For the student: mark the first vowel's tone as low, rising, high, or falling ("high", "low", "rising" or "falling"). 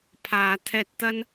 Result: low